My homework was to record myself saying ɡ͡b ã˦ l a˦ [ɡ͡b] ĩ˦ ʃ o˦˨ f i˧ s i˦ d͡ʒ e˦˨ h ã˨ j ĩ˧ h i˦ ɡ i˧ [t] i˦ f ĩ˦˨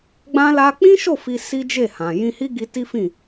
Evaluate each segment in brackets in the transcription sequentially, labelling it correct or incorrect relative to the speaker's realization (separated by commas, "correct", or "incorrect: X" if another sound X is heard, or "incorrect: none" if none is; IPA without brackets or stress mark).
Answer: incorrect: k͡p, correct